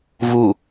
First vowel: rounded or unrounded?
rounded